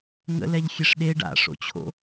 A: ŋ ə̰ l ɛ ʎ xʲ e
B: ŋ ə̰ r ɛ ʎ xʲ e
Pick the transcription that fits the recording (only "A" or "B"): A